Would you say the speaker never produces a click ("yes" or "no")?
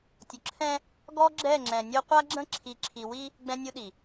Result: no